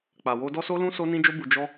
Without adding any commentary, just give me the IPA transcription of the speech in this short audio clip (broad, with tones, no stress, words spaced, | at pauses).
k͡pa˨wo˧dɔ˦so˦ lũ˦ so˧nĩ˧d͡ʒo˧bu˨ d͡ʒɔ˧